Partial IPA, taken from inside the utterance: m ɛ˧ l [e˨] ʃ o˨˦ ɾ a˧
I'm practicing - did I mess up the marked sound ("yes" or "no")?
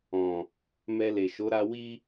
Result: no